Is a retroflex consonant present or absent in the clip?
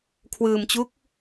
absent